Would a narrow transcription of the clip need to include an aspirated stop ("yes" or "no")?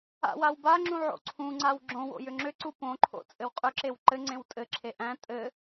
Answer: yes